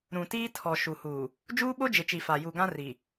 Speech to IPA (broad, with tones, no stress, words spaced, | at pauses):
ɾũ˨tiː˦tʰɔ˨ ʃu˨huː˨ | d͡ʒuː˦ɓo˦d͡ʒɪ˨t͡ʃi˨ fa˨ju˨ɡã˦ ri˨